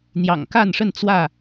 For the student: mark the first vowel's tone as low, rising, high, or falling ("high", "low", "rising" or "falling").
low